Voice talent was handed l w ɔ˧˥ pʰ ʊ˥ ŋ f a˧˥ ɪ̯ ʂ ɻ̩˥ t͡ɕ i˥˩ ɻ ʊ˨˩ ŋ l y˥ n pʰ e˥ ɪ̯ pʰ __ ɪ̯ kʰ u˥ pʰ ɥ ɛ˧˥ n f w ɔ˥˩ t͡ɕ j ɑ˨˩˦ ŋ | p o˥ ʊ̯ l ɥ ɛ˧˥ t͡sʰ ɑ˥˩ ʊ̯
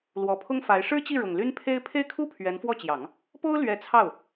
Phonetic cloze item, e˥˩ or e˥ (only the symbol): e˥˩